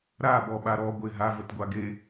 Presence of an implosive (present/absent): present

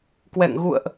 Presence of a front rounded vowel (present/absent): absent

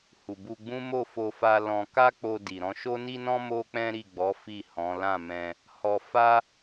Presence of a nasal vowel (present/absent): present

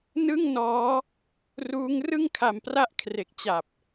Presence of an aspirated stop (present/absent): present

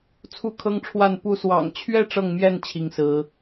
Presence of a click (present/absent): absent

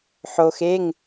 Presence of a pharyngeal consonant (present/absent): present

